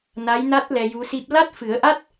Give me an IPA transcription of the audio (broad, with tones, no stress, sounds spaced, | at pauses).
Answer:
n a˧˥ j n a˦˥ t̚ l ɛ˧ j u˧˥ s i˦˥ p̚ l a˦˥ t̚ f ɨ˨˩˦ ə̯ ʔ a˦˥ t̚